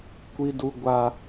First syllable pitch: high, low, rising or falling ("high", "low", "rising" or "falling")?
high